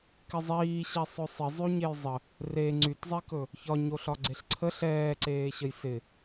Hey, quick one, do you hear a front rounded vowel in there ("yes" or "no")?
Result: yes